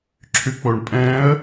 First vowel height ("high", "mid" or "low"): high